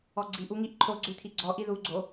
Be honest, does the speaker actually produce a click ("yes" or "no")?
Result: yes